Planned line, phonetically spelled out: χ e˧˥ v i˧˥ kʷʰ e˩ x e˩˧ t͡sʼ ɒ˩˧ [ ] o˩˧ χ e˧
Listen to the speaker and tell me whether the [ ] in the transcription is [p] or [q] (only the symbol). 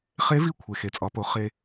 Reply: p